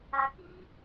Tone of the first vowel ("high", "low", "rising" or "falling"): low